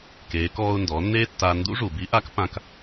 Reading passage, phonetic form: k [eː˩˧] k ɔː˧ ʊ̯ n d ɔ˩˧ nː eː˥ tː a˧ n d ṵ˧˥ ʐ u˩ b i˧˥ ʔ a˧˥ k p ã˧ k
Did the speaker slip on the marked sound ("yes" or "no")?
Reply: no